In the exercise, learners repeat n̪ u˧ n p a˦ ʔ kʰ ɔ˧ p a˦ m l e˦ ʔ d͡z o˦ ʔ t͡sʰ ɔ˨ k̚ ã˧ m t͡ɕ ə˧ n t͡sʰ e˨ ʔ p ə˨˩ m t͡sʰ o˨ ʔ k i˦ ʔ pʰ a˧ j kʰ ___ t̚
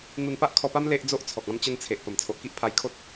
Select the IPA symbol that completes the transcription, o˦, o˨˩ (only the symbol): o˦